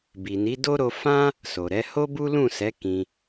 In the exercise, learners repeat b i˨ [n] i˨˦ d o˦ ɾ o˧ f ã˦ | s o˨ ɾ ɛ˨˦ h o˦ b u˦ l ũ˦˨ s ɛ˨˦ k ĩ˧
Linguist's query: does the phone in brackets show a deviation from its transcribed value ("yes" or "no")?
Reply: no